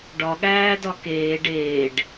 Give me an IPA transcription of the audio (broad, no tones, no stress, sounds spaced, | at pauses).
ɖ ɒ ɠ æː d ɒ k eː ɖ eː ɖ